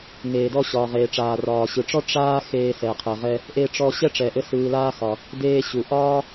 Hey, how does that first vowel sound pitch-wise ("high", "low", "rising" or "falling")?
low